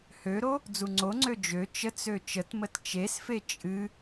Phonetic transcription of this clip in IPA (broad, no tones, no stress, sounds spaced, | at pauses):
h ø ɾ o | d͡z u ŋ͡ǀ o ŋ͡ǀ ø d͡ʒ ø t͡ʃ ə t͡s ø t͡ʃ ə t m ə t t͡ʃ e s f e t͡ʃʼ ɨ